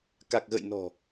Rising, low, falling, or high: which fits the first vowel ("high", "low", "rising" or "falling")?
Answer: low